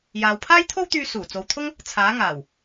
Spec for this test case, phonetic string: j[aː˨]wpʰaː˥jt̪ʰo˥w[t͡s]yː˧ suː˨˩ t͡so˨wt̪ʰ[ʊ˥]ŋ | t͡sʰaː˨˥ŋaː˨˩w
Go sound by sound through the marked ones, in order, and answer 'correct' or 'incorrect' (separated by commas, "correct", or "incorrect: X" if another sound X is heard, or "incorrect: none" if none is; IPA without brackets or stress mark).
correct, incorrect: t̪, correct